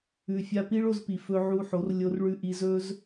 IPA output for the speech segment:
ʉ˨ fʲ a˧ p i˦ ɭ o˧ z p i˨ f ɵ˧ ʕ u˧ ħ o˨˦ r lʲ o˧ r ɭ ʉ˧ ʔ i˧ z ɵ˦ z

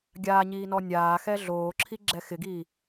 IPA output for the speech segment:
ɡʲ aː ɲ iː n ɔ nʲ aː x ɛː ɮ oː ǁʰ i ɡ͡ǁ ɛ x ɪ ɡ iː

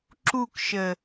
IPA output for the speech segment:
ǁ u k ʃ ə

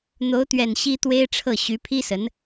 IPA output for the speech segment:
n̪ o˧˥ ʊ̯ t̪ ɥ ɛ˨˩ n ɕ i˥ t̪ w e˥ ɪ̯ ʈ͡ʂʰ ɤ˥˩ ɕ y˧˥ pʰ i˥ s ə˧˥ n

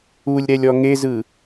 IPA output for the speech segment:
u lʲ ɾ ɛ lʲ ɔ ŋ e z ɯ

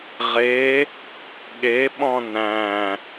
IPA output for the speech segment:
ʁ e | ɠ e ɓ ɔ̃ n æ̃

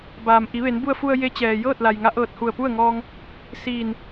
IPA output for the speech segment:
b aː˩ m ʔ i˩˧ ʋ e˩˧ n b u˧ ə̯ f u˧ ə̯ j e˧˥ t͡ɕ ɛː˩ j ɤː˥˨ t̚ l a˩ j ŋ a˧˥ ʔ ɤː˧˩ t̚ h u˧˩ ə̯ p u˥˨ ə̯ ŋ ɔː˧ ŋ | s iː˧˩ n

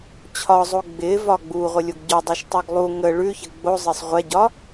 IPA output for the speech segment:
t͡ɕʰ ɒ zˤ o ɡ͡b ɪ v ɒ ɡ͡b u ʁʷ ə lʲ o ɡ ɟ ɔ dˤ u ʃ tˤ ɤ ɡ lˠ u ŋ ə ɭ ʉ ç ə ɡ͡b o zˤ ɪ sˤ ʁʷ ɛ ɟ ɒ

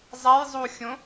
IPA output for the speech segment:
zˤ ɛ j zˤ u xʲ õ

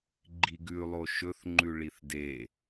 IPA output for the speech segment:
ɡ͡ǃ i ɡ ʉ lˠ o ʃ ɵ θ ŋ͡ǃ ʉ ɭ i θ d e

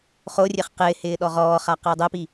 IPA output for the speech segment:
χ o rʲ e χ q ɪː h ɪː ɗ ɔ ʁ ɔː χ a q ɪː dˤ ɛ p i

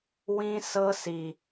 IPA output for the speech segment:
w ĩ˦ s ɤ˦ s i˨

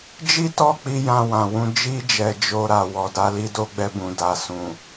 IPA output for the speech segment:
d͡ʒ i˦ t ɔ˦˨ k͡p i˧ j ã˧ w ã˨ w ũ˧ d͡ʒ i˧ d͡ʒ ɛ˨ d͡ʒ o˧ ɾ a˨ w ɔ˨ d a˨˦ l i˦ d o˦ ɡ͡b ɛ˧ b ũ˨ d a˨ s ũ˨

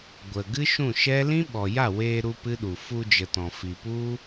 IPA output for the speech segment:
ɡʷ ə˨ ɡ ɨ˦ ʃ ũ˦˨ ʃ ɛ˦ l ĩ˦ ɓ ɔ˨ j a˦˨ w eː˧ ɾ u˦ p ɨ˦ ɗ u˨ f u˧ d͡ʒ ə˨ t ɔ̃˨ f i˨ p u˦

